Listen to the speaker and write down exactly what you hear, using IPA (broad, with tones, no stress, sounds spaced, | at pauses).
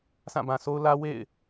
sʰ ã˦˨ b ã˨ s o˦ ʊ̯ l ä˦ w ḛ˦˨ ɪ̯